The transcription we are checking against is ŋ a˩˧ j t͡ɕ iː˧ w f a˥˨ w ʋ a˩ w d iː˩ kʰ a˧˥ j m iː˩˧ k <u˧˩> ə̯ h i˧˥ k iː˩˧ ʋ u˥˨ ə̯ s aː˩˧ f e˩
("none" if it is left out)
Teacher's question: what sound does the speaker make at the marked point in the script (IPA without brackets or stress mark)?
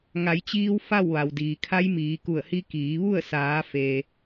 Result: u˧˩